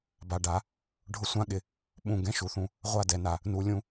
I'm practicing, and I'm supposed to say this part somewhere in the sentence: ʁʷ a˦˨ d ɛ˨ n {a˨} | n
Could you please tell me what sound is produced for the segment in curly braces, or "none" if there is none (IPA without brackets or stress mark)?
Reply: a˨